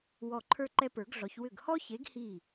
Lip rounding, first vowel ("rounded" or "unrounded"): rounded